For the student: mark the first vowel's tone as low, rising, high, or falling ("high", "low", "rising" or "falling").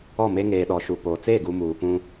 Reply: falling